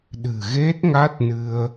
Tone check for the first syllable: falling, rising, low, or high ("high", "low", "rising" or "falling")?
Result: low